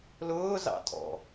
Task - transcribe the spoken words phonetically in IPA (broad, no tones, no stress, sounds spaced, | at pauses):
l ʊː z ɑ̰ tʼ ɔ̰